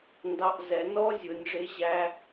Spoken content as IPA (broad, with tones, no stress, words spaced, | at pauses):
ndɑ˧ʔzɛ˩˧ nɔ˥zʲʊ˩˧nʲʐɪ˧˥ ʑæ˧